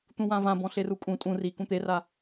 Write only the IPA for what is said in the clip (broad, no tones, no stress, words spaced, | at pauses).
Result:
t̪ũwãvã bɔ̃ɬerukʼũ tʼũ ri kũt̪era